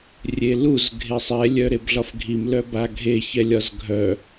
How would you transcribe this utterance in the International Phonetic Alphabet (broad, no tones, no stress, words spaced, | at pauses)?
rʲeluz ɡʱesˤɛ lʲœɾebɮɒfɡʱim lœbaɡʱe çɛlʲɒzɡʱœ